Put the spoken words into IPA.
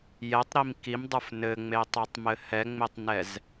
j ɛ tˤ ɾ i m k i m dˤ ə˞ f n ɘ ŋ͡m e tˤ ɛ tˤ m ɘ h ɛ ŋ͡m e tˤ n ɛ z

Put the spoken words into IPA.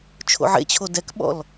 t͡ʃʰ o̰ ʕ ḛ t͡ɕʰ o d ɛ k ɓ ɔ̰ l

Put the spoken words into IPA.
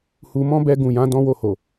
h u˧ m ɔ̃˦ b ɛ˧ ɡ ũ˨ j ã˨˦ d ɔ̃˦ w o˦˨ h o˨

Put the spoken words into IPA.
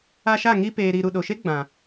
a˧ ʃ a˦˨ ŋ i˧ p eː˨ ɾ i˨ ɾ u˨ ɗ o˨ ʃ e˦ ɡ͡b ã˨

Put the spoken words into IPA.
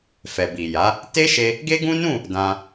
f ɛ˨ b i˨ j a˨˦ | t e˦ ʃ e˧ | ɡ e˦ ɡ ũ˦ n ũ˦˨ | d ã˧

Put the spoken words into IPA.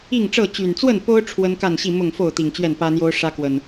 i˥˨ ŋ ʈ͡ʂ ɤ˥˨ t͡ɕ y˨˩ n t͡s w ə˥˨ n p o˦ ʊ̯ ʈ͡ʂʰ w ə˦ n k a˥˨ n ɕ i˥˨ m ʊ˥˨ ŋ f o˥˨ ʊ̯ t̪ i˨˩ ŋ t͡ɕ ɥ ɛ˥˨ n p ä˦ n̪ j o˦ ʊ̯ ʂ ä˦ k w ə˨˩ n

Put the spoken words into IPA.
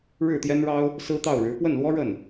ɻ ɻ̩˥˩ t̪ j ɛ˥ n ɻ ɑ˥ ʊ̯ | s ɹ̩˥ t̪ ɑ˥˩ ʊ̯ ɻ ɻ̩˧˥ p w ə˥˩ n l w ɔ˥ ɻ ə˥˩ n

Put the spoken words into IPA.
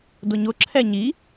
d ʊ ɲ ʊ ǁʰ ɛ ɲ i

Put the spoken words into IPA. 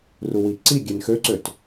r u w i ǀ i ɡʲ e n x ø ǀ ø t

